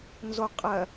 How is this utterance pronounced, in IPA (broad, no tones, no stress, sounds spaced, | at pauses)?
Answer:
n z o qʼ ɜ